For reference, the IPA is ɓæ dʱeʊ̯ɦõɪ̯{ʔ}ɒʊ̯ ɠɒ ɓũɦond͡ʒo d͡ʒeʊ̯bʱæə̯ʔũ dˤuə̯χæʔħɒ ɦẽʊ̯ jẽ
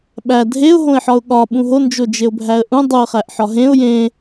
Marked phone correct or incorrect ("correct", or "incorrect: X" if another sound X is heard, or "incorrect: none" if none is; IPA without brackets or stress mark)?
incorrect: ħ